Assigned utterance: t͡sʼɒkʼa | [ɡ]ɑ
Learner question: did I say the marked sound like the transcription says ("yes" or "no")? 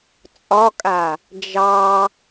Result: no